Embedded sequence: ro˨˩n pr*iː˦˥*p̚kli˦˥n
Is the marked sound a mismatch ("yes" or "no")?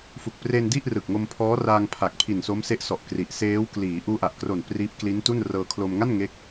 no